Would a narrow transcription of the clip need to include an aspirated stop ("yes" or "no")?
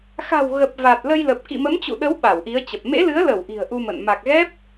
no